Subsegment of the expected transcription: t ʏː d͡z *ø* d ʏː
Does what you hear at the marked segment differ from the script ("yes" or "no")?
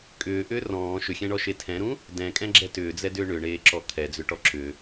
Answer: yes